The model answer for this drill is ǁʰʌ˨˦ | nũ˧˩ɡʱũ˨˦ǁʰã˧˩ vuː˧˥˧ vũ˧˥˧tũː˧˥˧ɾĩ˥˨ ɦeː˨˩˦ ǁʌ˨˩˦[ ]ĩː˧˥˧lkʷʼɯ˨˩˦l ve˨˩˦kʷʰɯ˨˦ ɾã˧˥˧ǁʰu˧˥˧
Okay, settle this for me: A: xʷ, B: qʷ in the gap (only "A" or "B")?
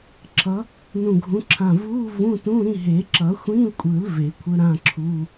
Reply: A